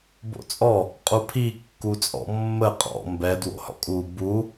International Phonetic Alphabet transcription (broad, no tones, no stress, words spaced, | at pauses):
bo̰t͡sʼɔ | qʼupʰi kːut͡sʼɔ̰mːə qʼɔ̰ mbɛ dwo̰hɔ̰kʼu bu